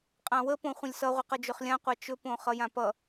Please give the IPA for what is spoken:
qʼ ã w ə p õ χʷ ə̃ lʲ s ʌ ʁʷ ə q ʌ d͡ʒ ɵ χ lʲ ã qʷ a t͡ʃ ɵ p õ χ ʌ j ã p ʌ

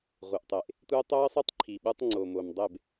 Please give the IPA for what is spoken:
ʁʷ ɯ˨ ʔ tˤ e˨ ʔ | tʷ e˦ tˤ o˦ ə̯ sˤ e˦ tˤ ǃʰ i˨ ɓ ɯ˦ tˤ ŋ͡ǀ o˨ m o˨ m dˤ e˦˨ b

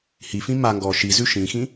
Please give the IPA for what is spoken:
h i f ĩ m a ŋ ɡ ɔ ʃ i z ʉ ʃ ĩ x ĩ

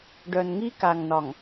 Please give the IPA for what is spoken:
ɖ œ˨ n ŋ i˦ k a˨ ŋ n ɒ˨ ŋ

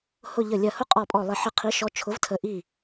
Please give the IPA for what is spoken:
h ʊ˧˩ ʎ ə˧˩ lʲ ɜ˧˩ h ʊ˦˥ qʼ ɔ˧˩ pʼ ɔ˧˩ lˠ ɪ˧˩ ħ ɪ˧˩ qʰ i˨˥ ʃ ɔ˨˥ t͡ʃʰ ʊ˨˥ v tʰ ə˨˥ ʔ i˧˩

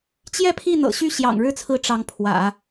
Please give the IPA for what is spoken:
t͡ɕ j ɛ˥˧ pʰ i˥˩ n̪ ɤ̰˨˩ ɕ y˥˩ ɕ j ɑ̰˨˩ ŋ ɻ ɻ̩˥˩ t͡sʰ ɹ̩˧˥ ʈ͡ʂ ɑ˧˥ ŋ pʰ w ä̰˨˩˦

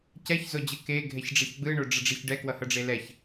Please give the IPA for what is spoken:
c ɛ ç z o d͡ʑ ɯ k e ɡʱ ɛ ç ɖ͡ʐ ɛ ç ɡ͡b ɯ ɳ o ɖ͡ʐ ʌ ɖ͡ʐ e ç ɖ ɛ k w ʌ h ʌ ɖ͡ʐ e l ɛ ç

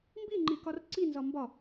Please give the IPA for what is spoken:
m b i ŋ͡ǃ i k ɒ r ǀ i n z ɒ m b ɒ

